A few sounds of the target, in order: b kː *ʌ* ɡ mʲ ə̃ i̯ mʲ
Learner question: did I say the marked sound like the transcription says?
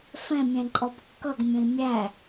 yes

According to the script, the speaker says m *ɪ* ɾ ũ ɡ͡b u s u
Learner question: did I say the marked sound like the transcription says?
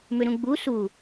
no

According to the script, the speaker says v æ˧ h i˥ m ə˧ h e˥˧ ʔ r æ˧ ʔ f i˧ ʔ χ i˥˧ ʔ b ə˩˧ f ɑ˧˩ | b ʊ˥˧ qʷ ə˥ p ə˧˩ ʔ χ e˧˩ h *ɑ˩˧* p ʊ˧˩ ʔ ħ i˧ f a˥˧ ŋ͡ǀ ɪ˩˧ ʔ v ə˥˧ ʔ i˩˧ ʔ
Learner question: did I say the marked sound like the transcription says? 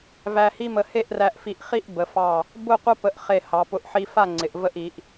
yes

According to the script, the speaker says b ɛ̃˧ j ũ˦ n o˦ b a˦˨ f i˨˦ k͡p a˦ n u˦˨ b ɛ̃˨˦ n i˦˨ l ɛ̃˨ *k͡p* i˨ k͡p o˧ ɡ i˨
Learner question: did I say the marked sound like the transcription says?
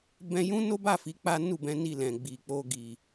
no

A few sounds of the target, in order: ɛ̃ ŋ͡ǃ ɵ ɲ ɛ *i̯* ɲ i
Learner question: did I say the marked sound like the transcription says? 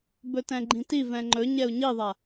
no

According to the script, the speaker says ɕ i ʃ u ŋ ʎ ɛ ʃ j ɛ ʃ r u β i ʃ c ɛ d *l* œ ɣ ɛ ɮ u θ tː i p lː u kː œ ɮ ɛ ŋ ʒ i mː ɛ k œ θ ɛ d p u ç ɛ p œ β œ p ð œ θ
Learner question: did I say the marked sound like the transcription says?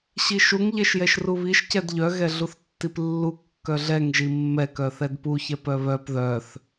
no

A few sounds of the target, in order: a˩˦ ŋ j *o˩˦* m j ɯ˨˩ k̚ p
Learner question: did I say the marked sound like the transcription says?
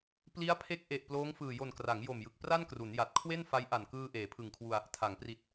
no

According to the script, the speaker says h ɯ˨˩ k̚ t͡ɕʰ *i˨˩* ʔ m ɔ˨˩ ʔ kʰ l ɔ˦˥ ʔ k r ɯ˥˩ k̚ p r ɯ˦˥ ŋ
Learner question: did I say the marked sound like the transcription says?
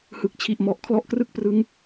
yes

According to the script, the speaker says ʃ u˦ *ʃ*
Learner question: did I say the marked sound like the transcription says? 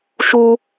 no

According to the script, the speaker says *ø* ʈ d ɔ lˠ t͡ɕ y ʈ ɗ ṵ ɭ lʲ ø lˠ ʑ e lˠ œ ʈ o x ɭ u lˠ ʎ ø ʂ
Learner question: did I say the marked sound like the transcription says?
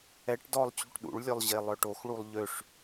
no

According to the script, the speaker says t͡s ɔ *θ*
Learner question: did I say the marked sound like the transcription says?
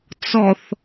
yes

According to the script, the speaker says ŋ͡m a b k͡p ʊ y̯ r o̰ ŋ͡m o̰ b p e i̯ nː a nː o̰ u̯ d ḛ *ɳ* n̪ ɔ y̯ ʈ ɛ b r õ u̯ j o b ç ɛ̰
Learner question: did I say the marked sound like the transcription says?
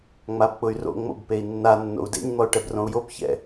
no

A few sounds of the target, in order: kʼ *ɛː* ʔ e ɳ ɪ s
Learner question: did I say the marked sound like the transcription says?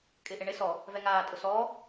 no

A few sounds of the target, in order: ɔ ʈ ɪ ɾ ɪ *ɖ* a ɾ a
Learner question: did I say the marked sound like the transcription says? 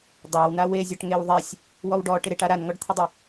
no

